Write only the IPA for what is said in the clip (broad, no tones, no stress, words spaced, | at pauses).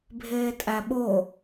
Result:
bʱeːtʼæɓo